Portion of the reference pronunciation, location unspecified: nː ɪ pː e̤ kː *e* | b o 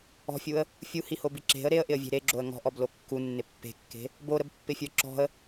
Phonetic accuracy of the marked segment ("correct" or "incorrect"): incorrect